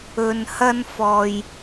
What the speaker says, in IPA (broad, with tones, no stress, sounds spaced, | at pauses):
ɵ˨ n h ɐ˥ n f ɔː˧ j